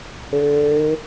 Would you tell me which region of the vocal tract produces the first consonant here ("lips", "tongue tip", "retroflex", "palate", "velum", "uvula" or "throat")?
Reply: throat